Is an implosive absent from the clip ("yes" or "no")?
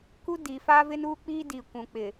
yes